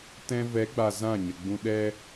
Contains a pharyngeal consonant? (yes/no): no